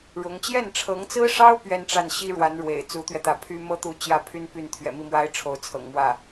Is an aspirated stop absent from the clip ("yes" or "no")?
no